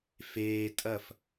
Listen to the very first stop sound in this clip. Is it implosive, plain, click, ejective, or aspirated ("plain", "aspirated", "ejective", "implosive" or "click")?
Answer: ejective